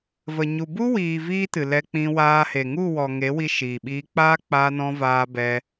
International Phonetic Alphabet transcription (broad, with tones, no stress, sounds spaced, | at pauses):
v ə˨ ɲ u˨ b u˦ w iː˨ v iː˦ t ɨ˨ l ɛ˧ k͡p ĩ˧ w aː˧ h e˨ ŋ u˦˨ w ɔ˨ ŋ e˨˦ w i˧ ʃ iː˨ ɓ iː˧ k͡p aː˦ k͡p aː˧ n ɔ̃˧ v aː˧ b ɛ˧